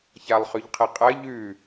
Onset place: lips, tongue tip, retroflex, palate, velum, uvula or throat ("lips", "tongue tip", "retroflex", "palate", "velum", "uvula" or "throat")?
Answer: palate